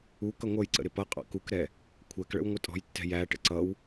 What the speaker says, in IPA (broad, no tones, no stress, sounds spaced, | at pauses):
u k ʌ ŋʷ ʌ j ǀ ə̰ ɾ ɪ p ʌ qʼ ɑ̰ k u k ɾ ɛ | kʷʰ æ k ɭ ə̰ w ŋʷ ɪ tʼ ɔ̤ j tː ɛ̤ j æ ʈ ə̰ ǀ ʌ w